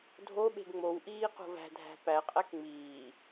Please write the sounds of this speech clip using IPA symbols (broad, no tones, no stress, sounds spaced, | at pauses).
dʱ o ɓ e̤ ɡ ŋ͡m o w ʔ iː q o̤ v æ̤ dʱ æ̤ p æ qʼ æ k ŋ͡m iː